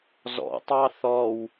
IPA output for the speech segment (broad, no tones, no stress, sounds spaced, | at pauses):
z ɔ̰ tˤ ɑ θ ɔ w